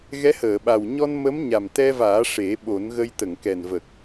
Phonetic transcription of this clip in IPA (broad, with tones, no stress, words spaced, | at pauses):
ɣɛ˧˥həː˨˩˨ɓa˨˩w ɲɔ˧n mə˧˥m ɲa˨˩mt̪ɛ˧vaː˨˩˦ ʂe˨˩˦ ɓo˨˩˦nɣə˧j t̪ə˨˩˨ŋkɛ˨˩nvə˨˩k̚